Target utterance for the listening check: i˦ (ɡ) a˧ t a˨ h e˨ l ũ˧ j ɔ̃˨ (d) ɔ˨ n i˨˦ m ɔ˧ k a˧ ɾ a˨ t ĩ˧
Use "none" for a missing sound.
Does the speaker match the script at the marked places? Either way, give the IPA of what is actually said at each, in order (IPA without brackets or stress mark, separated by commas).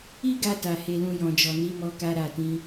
ɡ, d͡ʒ